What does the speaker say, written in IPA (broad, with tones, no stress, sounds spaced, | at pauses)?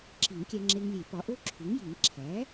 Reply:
ǁ i˨˩˦ ŋ kʲ æ˧ ŋ͡ǁ e˧ ŋ lʲ e˨˩˦ p ɒ˩˥ ʔ o˦˥ ǁʰ u˩˥ ŋ j i˨˩˦ ŋ ǁʰ æ˩˥